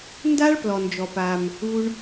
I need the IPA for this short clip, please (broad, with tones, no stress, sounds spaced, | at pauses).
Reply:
n d a˦ ɭ p l ɔ˧ n d͡ʒ ɔ˧ p a˧ m | u˦ ɳ